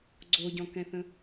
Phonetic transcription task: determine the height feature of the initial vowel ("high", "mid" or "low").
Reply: mid